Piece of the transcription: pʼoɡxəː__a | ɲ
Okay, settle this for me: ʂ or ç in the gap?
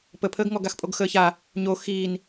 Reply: ç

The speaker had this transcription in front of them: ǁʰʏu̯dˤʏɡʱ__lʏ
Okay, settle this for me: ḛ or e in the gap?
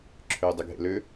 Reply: ḛ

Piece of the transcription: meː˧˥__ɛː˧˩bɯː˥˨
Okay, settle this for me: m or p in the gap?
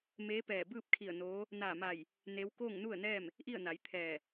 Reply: p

